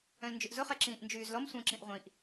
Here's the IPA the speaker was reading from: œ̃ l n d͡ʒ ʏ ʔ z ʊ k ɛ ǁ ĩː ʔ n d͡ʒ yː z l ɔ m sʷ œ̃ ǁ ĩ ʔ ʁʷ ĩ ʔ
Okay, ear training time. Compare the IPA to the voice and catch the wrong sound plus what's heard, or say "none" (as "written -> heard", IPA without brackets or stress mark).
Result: k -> χ